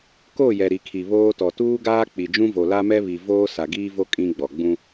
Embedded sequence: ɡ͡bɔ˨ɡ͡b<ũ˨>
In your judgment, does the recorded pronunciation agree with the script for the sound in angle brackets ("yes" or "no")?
no